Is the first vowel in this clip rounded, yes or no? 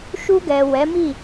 yes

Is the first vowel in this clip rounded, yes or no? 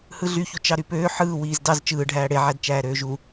no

